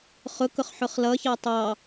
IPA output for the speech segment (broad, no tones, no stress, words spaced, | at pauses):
χʊkʊχ ħʊχlʌçɑ tˤɑ